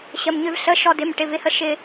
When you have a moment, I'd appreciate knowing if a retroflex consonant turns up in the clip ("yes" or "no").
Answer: yes